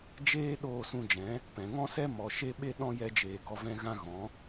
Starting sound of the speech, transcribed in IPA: d͡ʒ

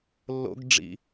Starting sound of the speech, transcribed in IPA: lː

